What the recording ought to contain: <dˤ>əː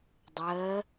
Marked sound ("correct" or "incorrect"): correct